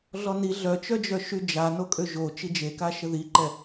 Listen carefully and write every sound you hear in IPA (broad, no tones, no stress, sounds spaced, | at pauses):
ɮ ɔ n i ɮ œ t͡ʃ œ d͡ʒ œ ʃ y d͡ʒ a n o kʼ ø ʒ o t͡ʃ i d͡ʒ e k a ʃ ə ð i ǃ ɛ